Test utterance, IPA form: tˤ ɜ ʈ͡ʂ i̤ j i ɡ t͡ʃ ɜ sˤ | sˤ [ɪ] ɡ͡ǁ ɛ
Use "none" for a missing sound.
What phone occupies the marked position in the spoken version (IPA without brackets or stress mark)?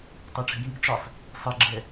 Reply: ɪ